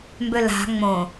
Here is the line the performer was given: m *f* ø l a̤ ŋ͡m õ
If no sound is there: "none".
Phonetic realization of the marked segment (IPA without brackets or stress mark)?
b